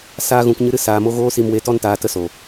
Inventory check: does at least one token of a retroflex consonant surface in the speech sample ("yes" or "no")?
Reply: no